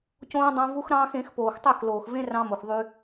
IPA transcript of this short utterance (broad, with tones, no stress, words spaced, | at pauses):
cõː˦ dˤɑ̃˦vu˦xɾɑ̃ː˦xẽ˨˦x poː˨xtˤø˦˨xloː˨xvẽ˦ rɑ̃˦mo˨xðˤy˦